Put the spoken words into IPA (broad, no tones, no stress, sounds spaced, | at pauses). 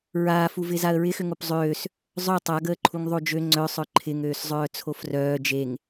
ɹ aː f u v ɪː z a ə̯ ɹ ɪ x ʏ ŋ o p zˤ øː s | zˤ œ tˤ a ɡ əː ǃʰ u ŋ ðˤ o d͡ʒ ø ŋ͡ǀ œ sˤ œ ǃʰ ɪ ŋ øː s zˤ œː t͡sʰ o f r œː d͡ʒ e ŋ